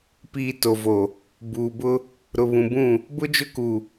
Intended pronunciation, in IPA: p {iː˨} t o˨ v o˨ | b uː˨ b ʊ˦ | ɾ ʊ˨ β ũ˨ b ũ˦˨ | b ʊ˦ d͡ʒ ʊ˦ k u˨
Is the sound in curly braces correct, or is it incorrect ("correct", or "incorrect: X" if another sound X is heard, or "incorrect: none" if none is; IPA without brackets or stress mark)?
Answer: correct